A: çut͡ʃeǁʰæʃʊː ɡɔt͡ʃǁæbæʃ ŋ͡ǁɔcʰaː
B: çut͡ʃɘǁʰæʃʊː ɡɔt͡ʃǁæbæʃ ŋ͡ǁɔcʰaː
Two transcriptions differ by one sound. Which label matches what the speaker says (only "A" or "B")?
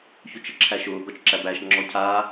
B